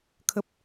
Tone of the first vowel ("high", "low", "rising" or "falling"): low